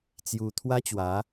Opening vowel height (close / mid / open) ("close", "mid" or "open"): close